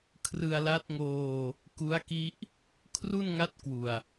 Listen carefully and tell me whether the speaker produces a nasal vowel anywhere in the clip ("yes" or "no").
no